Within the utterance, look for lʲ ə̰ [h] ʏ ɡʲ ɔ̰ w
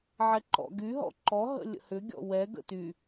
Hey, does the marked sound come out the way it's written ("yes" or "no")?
yes